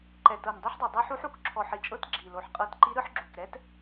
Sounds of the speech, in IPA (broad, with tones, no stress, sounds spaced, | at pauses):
ǃ ɛ˨˩ t ɤ˨˩ n dˤ i˧˥ ħ dˤ u˨˩ dˤ ɛ˧˥ ħ u˧˥ ħ u˧˥ k ǁʰ ɔ˨˩ ħ i˨˩ t͡ʃʼ ɤ˧˥ t ɡ͡ǁ i˨˩ l o˨˩ ħ qʼ ɤ˧˥ t ǃ i˧˥ ɾ ɯ˧˥ ħ ɡ͡ǁ u˨˩ k ɾ ɛ˧˥ t